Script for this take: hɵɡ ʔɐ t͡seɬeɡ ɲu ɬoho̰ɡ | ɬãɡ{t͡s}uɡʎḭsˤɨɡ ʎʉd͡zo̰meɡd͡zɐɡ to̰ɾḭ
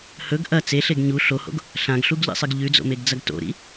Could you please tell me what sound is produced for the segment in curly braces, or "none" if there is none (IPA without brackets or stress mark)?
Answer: ɬ